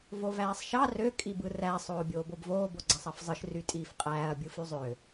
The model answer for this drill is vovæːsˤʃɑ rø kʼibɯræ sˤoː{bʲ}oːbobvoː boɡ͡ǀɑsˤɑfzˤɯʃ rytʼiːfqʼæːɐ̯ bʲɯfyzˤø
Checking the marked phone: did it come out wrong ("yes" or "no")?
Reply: no